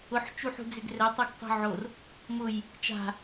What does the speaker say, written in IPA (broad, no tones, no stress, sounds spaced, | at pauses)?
ʊ ħ t͡ʃ u ħ ṳ d͡z ʏ ɡ r ɛ tˤ u ɡ tˤ ṳ ʕ o r | m ʊ j | t͡ʃ a̤